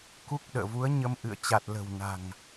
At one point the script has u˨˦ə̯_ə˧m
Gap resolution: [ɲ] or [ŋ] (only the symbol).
ɲ